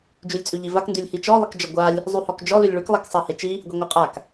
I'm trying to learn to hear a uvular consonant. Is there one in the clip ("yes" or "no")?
yes